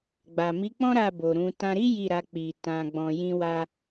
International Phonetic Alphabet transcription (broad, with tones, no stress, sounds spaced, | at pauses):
ɡ͡b a˨ m i˨˦ k͡p ɔ̃˦ ɾ a˦˨ b o˨ ɾ ũ˨˦ t ã˧ ɾ i˦ j i˦˨ ɾ a˧ k͡p i˨ t ã˧ ɡ͡b ɔ̃˧ j ĩ˦ w a˦